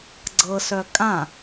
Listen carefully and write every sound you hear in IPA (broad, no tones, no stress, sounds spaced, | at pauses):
ɡ͡ǀ ɤ s œ kʼ ã